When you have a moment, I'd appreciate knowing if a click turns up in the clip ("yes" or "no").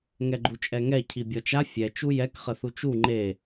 yes